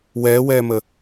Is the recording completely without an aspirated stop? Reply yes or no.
yes